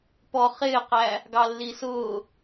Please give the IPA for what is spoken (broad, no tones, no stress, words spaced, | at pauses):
pɔ χɪːqæ | ɡɑlːisʊː